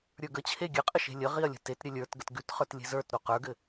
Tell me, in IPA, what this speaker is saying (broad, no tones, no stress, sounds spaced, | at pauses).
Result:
ɾʲ ə˞ ɡ ə t͡ɕʰ e ɡʲ ɘ qʼ ə ʃ e̤ lʲ ə ʁ i ɐ̯ lʲ ə̤ t e t ɾʲ ɘ lʲ ə˞ t ɡ ə t ɡ ʉ t χ ə˞ t lʲ e̤ z ə˞ t ɾ o q ə˞ ɡ ɘ